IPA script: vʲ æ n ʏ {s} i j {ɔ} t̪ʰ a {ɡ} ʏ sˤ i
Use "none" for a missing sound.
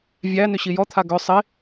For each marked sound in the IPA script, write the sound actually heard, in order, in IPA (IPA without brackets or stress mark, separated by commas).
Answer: ɕ, ɔ, ɡ